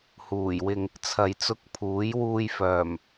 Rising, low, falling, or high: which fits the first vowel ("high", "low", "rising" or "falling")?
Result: low